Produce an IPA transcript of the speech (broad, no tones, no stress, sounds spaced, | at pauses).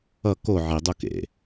ʌ k o ʕ i dˤ u k ḛ